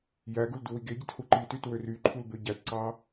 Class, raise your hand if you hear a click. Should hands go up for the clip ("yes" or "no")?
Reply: yes